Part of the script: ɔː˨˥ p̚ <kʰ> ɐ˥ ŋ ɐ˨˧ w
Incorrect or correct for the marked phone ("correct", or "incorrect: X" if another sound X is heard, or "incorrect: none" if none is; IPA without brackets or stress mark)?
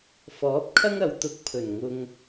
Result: correct